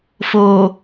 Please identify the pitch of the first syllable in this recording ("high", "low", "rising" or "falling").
low